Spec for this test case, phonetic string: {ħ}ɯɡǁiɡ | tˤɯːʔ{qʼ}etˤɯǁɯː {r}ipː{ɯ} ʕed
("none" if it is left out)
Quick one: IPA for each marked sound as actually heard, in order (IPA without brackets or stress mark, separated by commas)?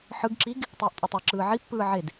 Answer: ħ, tʼ, ʕ, ɯː